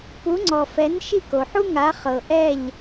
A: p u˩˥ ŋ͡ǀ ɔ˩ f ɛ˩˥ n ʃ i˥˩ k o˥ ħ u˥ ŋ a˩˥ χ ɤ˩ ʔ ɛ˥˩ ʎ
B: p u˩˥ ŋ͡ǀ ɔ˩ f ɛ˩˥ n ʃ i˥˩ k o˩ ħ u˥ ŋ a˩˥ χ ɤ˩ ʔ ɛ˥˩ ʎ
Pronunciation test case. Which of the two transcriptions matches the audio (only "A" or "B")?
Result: B